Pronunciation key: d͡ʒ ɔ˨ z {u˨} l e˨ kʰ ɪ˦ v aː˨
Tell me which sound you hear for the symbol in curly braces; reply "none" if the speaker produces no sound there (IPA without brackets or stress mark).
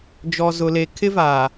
ʊ˨